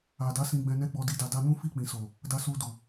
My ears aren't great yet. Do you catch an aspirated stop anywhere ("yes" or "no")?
no